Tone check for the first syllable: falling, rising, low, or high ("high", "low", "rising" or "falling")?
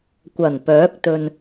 low